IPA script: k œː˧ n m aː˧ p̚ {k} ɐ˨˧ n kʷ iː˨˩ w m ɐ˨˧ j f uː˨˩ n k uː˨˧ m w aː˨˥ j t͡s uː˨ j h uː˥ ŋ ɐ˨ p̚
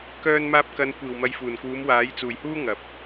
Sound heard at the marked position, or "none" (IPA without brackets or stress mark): k